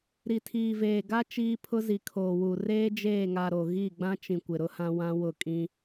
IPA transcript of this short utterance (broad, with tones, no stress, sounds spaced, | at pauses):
ɾ i˨ tʰ iː˨ v eː˨ ɡ a˦ t͡ʃ iː˦ pʰ ʊ˦ z i˨ kʰ oː˨ w u˨ r eː˦ d͡ʒ eː˦˨ ŋ a˨ ɾ o˨ ɣ i˦˨ ɡ͡b ã˦ t͡ʃ ĩ˨ kʷ ɪ˨ ɾ ʊ˦ h ã˦ w ã˦ w ʊ˦˨ kʼ ĩ˦